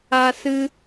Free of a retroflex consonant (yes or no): yes